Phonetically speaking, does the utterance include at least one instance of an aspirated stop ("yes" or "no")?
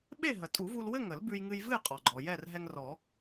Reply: no